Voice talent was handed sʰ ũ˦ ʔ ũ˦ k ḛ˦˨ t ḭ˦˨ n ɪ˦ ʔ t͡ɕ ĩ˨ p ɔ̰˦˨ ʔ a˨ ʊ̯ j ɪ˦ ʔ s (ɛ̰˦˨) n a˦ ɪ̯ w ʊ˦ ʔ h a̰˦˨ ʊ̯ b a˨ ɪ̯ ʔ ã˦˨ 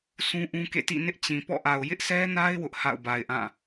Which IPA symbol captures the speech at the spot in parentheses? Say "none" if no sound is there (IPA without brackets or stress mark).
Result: ɛ˦